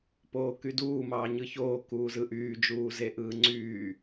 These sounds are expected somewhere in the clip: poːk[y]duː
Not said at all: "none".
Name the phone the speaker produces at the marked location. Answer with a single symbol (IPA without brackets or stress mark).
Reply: y